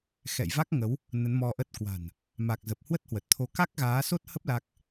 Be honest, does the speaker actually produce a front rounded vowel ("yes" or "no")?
no